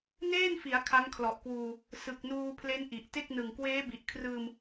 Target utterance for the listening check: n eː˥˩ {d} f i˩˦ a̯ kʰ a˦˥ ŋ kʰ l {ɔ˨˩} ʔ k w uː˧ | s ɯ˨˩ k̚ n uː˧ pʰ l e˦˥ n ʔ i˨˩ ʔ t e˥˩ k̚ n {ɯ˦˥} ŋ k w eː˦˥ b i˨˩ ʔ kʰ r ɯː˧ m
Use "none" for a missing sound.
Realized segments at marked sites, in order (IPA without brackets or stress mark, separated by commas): n, ɔ˨˩, ɯ˨˩